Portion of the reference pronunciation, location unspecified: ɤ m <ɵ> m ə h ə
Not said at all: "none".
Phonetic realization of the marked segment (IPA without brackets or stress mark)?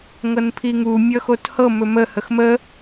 ɵ